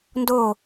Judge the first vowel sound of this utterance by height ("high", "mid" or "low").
mid